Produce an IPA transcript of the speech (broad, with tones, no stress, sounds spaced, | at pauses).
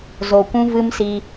z o˨ kʷ ũ˦ v ɨ˦ m s i˧